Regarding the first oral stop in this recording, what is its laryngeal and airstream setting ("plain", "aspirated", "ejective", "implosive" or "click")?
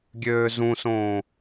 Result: plain